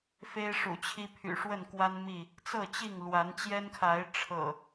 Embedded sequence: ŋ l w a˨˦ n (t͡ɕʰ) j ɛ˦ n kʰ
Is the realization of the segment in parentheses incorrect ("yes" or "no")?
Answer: yes